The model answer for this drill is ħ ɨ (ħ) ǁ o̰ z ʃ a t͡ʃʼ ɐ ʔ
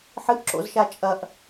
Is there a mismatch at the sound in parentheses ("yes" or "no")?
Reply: yes